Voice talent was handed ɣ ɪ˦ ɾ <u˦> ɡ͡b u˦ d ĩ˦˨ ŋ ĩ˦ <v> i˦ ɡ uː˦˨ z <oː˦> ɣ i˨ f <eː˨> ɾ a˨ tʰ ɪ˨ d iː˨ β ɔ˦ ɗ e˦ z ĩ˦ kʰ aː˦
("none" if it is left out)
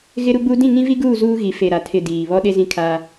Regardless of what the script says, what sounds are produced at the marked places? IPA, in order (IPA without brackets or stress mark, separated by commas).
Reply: u˦, v, uː˦, e˨